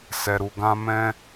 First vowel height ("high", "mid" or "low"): mid